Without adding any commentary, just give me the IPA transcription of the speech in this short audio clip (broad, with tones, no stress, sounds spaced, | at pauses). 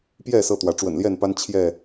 p j ɛ˥˨ s ɤ˥˨ t̪ w ä˨˦ ʈ͡ʂ w ə̰˨˩ n l j ɛ˥˨ n p a˦ n t͡ɕʰ j ɛ˥˨